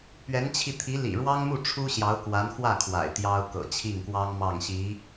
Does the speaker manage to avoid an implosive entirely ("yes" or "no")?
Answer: yes